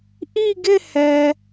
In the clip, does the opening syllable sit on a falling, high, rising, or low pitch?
falling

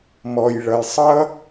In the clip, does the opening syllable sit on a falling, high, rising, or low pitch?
low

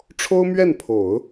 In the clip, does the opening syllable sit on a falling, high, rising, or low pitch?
high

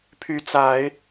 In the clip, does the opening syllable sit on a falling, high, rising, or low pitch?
rising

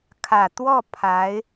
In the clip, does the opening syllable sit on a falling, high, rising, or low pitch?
low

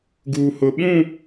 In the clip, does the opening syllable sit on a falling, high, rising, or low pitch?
low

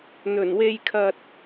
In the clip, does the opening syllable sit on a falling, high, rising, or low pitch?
low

